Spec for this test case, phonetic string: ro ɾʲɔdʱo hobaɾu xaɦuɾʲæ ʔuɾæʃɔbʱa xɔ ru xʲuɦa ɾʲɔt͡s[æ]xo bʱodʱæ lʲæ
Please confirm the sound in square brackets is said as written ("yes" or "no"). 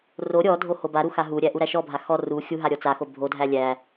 no